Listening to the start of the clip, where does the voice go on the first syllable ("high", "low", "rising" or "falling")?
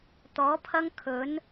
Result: rising